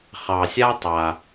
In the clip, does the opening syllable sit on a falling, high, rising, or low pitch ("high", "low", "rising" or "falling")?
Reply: low